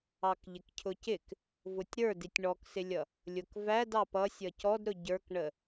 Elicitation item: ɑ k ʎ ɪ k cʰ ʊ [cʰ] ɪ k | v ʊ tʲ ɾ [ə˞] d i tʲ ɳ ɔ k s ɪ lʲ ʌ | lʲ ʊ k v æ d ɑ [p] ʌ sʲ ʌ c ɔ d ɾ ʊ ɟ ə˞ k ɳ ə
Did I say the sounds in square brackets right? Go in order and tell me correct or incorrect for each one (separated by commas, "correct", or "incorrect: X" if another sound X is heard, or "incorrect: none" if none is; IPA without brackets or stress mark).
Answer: incorrect: c, correct, correct